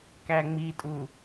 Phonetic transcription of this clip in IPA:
k æ ŋ͡m i tʼ u

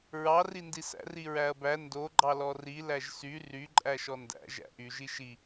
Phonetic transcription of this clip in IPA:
ɹ ɑ r i n d i s æ̰ r i ɹ æ ɐ̯ b æ n d o ɡ͡ǃ ɑ l ɔ r i l æ ʒ s y r y ǃʼ æ ʃ ɔ n d æ̰ ʒ æ̰ ʔ y ʒ i ʃ i

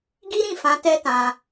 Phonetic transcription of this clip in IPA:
ɡ i˦ ɾ ĩ˦˨ f ã˨˦ t ɛ˦ t ã˧

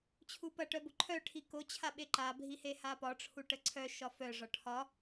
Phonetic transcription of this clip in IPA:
t͡ɕʰ u p ɐ ʈ œ b o ǃʰ œ ʈʰ i k o t͡ɕʰ a ɓ e ǃ a bʱ i h e h a p ɒ ʈ͡ʂʰ u ʈ ə ǀʰ œ ʃ ɒ f œ ʐ ɒ ʈʰ ɒ

